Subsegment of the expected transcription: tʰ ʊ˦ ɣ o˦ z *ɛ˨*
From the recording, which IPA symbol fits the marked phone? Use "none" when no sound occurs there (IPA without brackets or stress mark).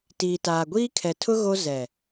ɛ˨